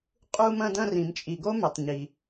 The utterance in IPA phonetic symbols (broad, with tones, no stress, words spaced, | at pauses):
qʼu˧mɐ̃˧dɐ̃˧r ĩ˩mt͡ʃʼi˩ɡo˥ mɪ˩tˤɲi˩